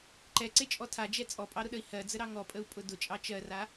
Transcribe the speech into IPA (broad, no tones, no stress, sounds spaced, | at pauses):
ǃ ɛ ǀ e t͡ʃʼ ɔ tʰ a d͡ʒ ɛ t͡sʼ ɔ pʼ ɑ ɾ ʊ ɗ ə i̯ h ɜ d͡z ə ɾ ɑ ŋ ɔ pʼ ə u̯ pʼ ʊ d ʊ t͡ʃʼ ɑ t͡ʃ ɜ r a